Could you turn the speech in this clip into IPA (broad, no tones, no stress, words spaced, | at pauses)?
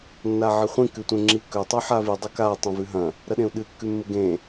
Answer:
nːaʕɨχʷĩ kʉtʷẽŋ͡ǁikɵ tˤʉħavi dˤɵka tˤɐ̃vʉɦɐ̃ | ɾɐɗẽu̯ɗɨ kːʉmːɨɡẽ